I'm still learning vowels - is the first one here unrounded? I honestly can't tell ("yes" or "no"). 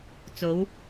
no